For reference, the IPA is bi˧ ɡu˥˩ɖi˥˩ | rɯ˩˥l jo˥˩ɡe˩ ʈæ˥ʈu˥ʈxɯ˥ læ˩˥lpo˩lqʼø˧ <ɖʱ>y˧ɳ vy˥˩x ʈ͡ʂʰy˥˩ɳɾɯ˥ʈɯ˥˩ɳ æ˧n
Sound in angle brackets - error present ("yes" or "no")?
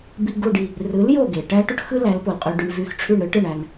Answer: yes